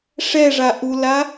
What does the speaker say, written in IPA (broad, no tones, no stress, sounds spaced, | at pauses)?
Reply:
ʂ ɛ ʐ a ʔ u l a